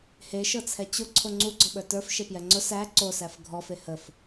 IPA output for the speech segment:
heʃɤt͡sʰɛ t͡ɕʊ ǀʰoŋ͡ǀuɡ͡ǀɔɓə˞ tə˞f ʃepjɛŋ͡ǀʊ sæ ǀosæf ɡʱɔfe həf

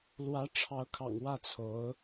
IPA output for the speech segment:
lwä˧˥ʈ͡ʂʰɑ˧˥ʊ̯kʰɑ̰˨˩ŋ wä˥˩t͡sʰo˧˥ʊ̯

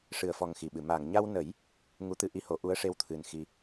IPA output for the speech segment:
ʂɨ˨˩ə̯fɔ˨˩ŋ xi˨˩ɓɨ˨˩˨ ma˨˩˨ŋɲa˧wnə˨˩˦j | ŋu˧˥t̪ɨ˧ʔi˧ho˨˩˦ ʔu˧˥ə̯ʂe˧wt̪ʰɨ˨˩n xi˧

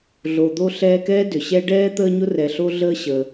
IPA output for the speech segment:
ɮo˨d̪o˦ ɬɛː˦kɛː˥dʏ˩ɕɛ˥ ɖɛː˥ t̪əː˥ɲʊ˥ rɛ˨ɬo˦ɮəː˦ ɕəː˨

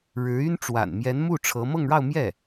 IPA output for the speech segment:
ɻɻ̩˧˥y˥n ʈ͡ʂwa̰˨˩nmjɛ˧˥nmu˥˩ ʈ͡ʂʰɤ˧˥ mɤ˥˧ŋɻɑ˥˧ʊ̯mjɛ˥˩

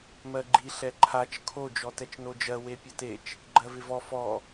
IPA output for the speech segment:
mɜɡ͡ǃi ɬɛǃʰat͡ʃ kʰo d͡ʒɔtɛt͡ʃnod͡ʒɜ wepʲɐtet͡ʃ | ɡ͡ǃɜvɪvɔ fɔ

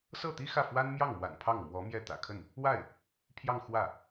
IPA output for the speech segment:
sɤ˥˩t̪i˥ xä˥˩fwa˥nmjɑ˥˩ŋmwa̰˨˩n pʰɑ˥˩ŋmwɔ˧˥mjɛ˥˩ t̪ä̰˨˩ kʰə˥˩n | wa˥˩ɪ̯ | pʰjɑ˥˧ŋ xwä˥˩

